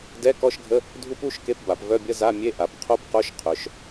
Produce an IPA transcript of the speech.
d ɛ˧˥˧ k ɔ˧˥˧ ʃ ɡʱ ə˧˥˧ | dʱ u˦˥ p u˧˥˧ ʃ k e˧˥˧ p b a˩˧ p v œ˧˥˧ bʲ ə˧˥˧ z a˧˥˧ mʲ e˧˥˧ ʔ a˩˧ p qʰ o˦˥ p q o˧˥˧ ʃ qʰ œ˩˧ ʃ

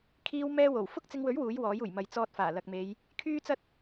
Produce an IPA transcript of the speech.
kʰ iː˥ w m ɛː˥ w o˨˩ w f ʊ˥ k̚ t͡s ɪ˧ ŋ w ɵ˨˥ ɥ w uː˨˥ j w ɔː˨˥ j uː˨˩ j m ɐ˨ j t͡s ɔː˧ t̚ f aː˨˩ l ɐ˨ k̚ m e˨˧ j | kʰ yː˥ t͡s ɐ˥ t̚

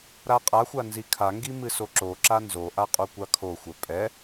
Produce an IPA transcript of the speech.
ɾ a qʼ a xʷ a n z i kʰ a ŋ ɡ i m ɨ s o ǁ o ǁ a n z o ʔ a qʼ o kʷ a kʰ o xʷ ɛ pʼ ɛ

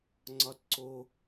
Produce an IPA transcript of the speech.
ŋ͡ǀ ɒ t ǀ o

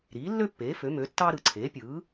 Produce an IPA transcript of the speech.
ɾ iː˩˥ lː ø˥ pː eː˩˥ f ø˩˥ m ø˩˥ tː ɑ˥ ɾ ɯ˨˩ ǀʰ eː˩˥ pʲ ɯː˩˥

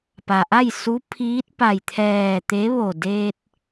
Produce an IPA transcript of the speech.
p a˩ ʔ a˥˨ j s u˧˥ pʰ iː˧˥ t̚ p a˧˩ j t̪ʰ ɛː˧˩ t̪ e˧˥ ʋ o˧˩ d eː˧ t̚

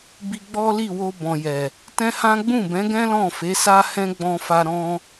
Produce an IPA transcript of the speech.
b i˧ ɡ͡b ɔ˦ l i˦˨ w o˧ b ɔ̃˨ j ɛ˨ | t ɛ̃˦ h ã˦ ɡ͡b ũ˦˨ b ɛ̃˨˦ ɡ ɛ̃˦ l ɔ̃˦˨ f e˨˦ s a˦ h ɛ̃˦ ɡ͡b ɔ̃˧ f a˧ ɾ ɔ̃˧

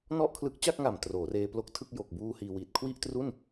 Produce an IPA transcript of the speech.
n ɔ˥˩ ʔ kʰ l ɯ˦˥ k̚ t͡ɕ a˥˩ k̚ ŋ a˨˩ m t r oː˩˦ r eː˧ p l o˦˥ k̚ tʰ ɯ˥˩ k̚ j o˨˩ k̚ b uː˧ h iː˧ w iː˨˩ t̚ kʰ w i˥˩ ʔ t r u˥˩ n

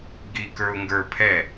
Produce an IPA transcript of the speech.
ɡ i k ə˞ ʊ̯ ŋ ɡ ə˞ pʰ ɛ

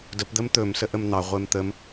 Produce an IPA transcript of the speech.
d ə p d̪ ə m t̪ ɵ m s ə ʔ ə m n̪ ɑ ʁʷ e m t̪ ə m

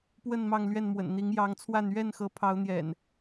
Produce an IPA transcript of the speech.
p w ə˥˨ n m ɑ˥˨ ŋ l ɥ ɛ˥˨ n m w ə̰˨˩ n n̪ i˨˦ ŋ j ɑ˨˦ ŋ t͡sʰ w a˥˨ n ɥ ɛ˥˨ n x ɤ˨˦ pʰ ɑ˨˦ ʊ̯ n̪ j ɛ̰˨˩ n

